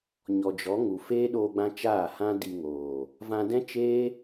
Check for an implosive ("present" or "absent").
present